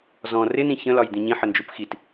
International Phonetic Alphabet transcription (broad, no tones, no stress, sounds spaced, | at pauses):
z ɔ̃ r ɪ n ĩ ç ə̃ l ɒ j d̪ ĩ ɲ ĩ ħ ə n d͡ʒ u p x i t